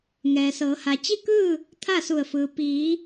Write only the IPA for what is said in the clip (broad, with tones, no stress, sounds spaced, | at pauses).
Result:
ŋ ɛː˩ s ɤː˩˧ h a˩ t͡ɕ i˥˨ k ɯː˥˨ | t̪ʰ a˥˨ s u˧˩ ə̯ f ɯː˩ p iː˩˧